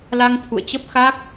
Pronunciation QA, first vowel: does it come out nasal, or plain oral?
oral